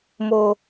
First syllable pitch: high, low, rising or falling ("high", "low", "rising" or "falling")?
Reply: high